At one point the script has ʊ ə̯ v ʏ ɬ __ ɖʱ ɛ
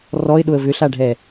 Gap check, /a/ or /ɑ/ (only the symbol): a